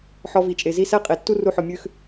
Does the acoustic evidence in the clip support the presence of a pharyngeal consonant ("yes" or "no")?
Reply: yes